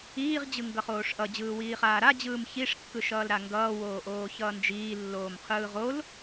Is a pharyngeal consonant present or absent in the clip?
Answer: absent